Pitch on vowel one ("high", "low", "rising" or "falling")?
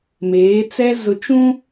rising